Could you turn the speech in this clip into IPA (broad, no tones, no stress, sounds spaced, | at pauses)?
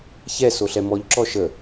ç ɛ s o ɬ ɛ m ɔ ʎ ǁ ɔ ʃ ə